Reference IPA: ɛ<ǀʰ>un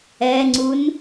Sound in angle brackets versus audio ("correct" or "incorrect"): incorrect